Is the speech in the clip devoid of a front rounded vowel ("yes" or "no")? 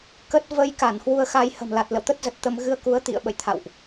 yes